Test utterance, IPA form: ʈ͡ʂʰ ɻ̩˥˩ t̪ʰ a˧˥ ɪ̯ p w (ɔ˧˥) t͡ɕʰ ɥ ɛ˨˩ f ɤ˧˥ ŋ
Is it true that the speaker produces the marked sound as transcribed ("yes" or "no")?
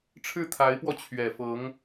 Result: no